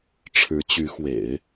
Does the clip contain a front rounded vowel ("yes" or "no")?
yes